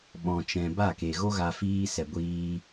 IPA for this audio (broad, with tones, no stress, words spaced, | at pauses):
ɓɔ̃˨t͡ʃɛ̃˨ ba˦˨ke˨ ɣo˧ɣa˨ fiː˧sɛ˨ɡʷiː˧